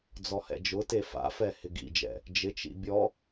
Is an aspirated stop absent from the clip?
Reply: yes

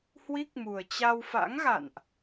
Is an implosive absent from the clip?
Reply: yes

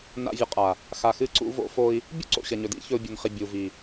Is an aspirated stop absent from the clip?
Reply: yes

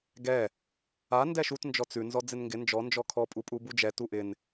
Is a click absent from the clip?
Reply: yes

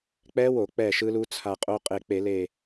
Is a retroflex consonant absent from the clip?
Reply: yes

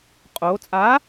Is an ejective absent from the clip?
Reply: no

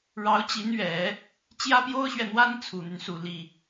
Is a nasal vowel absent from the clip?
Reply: yes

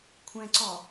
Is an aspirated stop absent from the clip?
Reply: no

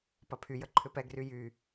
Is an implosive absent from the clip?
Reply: yes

